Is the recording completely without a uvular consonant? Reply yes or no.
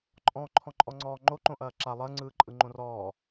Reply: yes